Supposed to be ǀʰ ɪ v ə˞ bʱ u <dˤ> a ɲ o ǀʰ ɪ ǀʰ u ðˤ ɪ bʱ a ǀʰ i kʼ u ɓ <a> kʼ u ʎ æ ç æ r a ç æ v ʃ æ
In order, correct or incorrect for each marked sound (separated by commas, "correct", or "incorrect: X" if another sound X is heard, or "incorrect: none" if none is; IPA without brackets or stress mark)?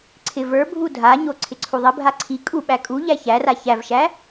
incorrect: dʱ, incorrect: æ